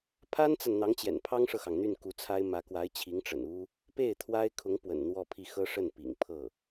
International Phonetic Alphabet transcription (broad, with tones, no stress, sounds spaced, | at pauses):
pʰ a˥ n t͡s a˨ n n̪ ɑ˧˥ ŋ t͡ɕ j ɛ̰˨˩ n pʰ ɑ˥ ŋ ʂ ɤ˨ x ɑ˩ ŋ n̪ y˥˩ n k u˧˥ t͡sʰ a˥ ɪ̯ m ä˧˥ k w a˧˥ ɪ̯ t͡ɕʰ i˧˥ ŋ ʈ͡ʂ ə̰˨˩ n u˥ | p e˥˩ ɪ̯ t̪ʰ w a˥ ɪ̯ kʰ ʊ˧˥ ŋ p w ə̰˨˩ n n̪ w ɔ˥˧ pʰ i˥˩ x ɤ˥ ʂ ə˥˩ n p ḭ˨˩ ŋ pʰ ɤ˥˩